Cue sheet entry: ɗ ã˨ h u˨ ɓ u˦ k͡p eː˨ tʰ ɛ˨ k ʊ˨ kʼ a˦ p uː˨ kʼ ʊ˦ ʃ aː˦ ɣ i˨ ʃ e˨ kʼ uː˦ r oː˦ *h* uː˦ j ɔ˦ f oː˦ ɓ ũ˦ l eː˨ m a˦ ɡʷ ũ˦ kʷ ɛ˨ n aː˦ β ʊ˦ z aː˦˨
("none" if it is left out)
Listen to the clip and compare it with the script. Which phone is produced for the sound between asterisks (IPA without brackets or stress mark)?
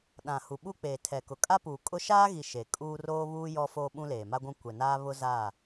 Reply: β